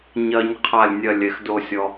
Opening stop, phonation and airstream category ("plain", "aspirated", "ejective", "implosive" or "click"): aspirated